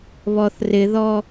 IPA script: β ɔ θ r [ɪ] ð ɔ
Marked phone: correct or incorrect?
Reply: correct